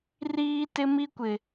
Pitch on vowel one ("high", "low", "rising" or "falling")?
high